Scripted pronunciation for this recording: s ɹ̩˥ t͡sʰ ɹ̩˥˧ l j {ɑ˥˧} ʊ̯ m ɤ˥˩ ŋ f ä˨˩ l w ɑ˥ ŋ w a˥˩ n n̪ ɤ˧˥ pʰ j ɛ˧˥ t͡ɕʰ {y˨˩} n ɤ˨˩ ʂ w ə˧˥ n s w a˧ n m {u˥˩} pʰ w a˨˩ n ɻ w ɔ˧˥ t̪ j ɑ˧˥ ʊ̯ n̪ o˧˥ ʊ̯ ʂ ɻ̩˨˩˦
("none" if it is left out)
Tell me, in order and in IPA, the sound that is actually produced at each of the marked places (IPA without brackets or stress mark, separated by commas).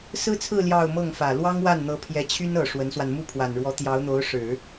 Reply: ɑ˥˧, y˥, u˥˩